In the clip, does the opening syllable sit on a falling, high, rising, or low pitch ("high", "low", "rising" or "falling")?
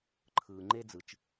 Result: low